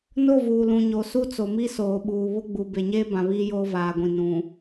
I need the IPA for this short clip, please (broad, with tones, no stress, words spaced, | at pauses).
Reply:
no˦˨ vuː˨lũ˨ɲo˨ su˦t͡so˨mi˦ soː˨ɓuː˨ βʊ˦ɡ͡bu˨ be˨ɲeː˦bã˨ βiː˦joː˦vaː˨ɡʷĩ˨ nũ˨